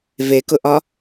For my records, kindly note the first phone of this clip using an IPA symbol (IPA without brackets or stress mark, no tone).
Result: v